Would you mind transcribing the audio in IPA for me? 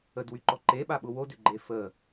ə d w y ǃ ɔ ǃ e ɓ a ɓ ʊ w o d ʏ ɡ͡ǃ e f ə

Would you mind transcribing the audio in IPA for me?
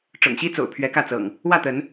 ʈ͡ʂ ɤ̰˨˩ ŋ ɕ i˦ t͡s o̰˨˩ ʊ̯ pʰ ɥ ɛ˨˦ k ä˥˨ t͡s ɤ̰˨˩ ŋ | w ä˥˨ t̪ ə˨˦ n

